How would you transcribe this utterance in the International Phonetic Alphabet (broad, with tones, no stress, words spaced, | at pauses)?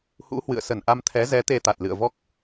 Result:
hṵ˧˥hwɨ̰˧˨ə̯sə˧˩n ʔa˧mt̪ʰɛ˨˦ zɛ˨˦ t̪e˧t̪a˨˩t̚lɨ̰˧˨ə̯ vɔ˦˥k̚